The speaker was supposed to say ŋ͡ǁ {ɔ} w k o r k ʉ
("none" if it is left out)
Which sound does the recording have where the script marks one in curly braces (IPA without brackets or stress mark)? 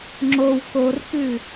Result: o